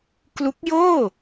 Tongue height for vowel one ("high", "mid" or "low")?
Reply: high